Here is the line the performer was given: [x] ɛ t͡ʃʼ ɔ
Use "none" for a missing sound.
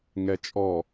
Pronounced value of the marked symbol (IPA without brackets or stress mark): ŋ